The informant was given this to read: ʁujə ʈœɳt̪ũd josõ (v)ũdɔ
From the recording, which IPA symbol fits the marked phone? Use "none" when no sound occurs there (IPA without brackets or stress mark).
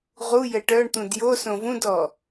v